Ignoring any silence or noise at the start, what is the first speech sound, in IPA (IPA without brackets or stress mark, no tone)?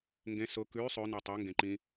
ŋ